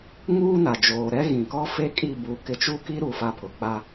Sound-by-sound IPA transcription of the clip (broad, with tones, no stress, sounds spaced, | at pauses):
ŋ uː˦ n a˨ d͡ʒ oː˨ ɾ ɛ˦ ɣ ĩ˨ k ɔ˦ f e˦ kʼ i˦˨ b u˨˦ k ɪ˨ t͡ʃ u˦ k i˦ ɾ u˨ f a˦ pʰ ʊ˨ k͡p a˦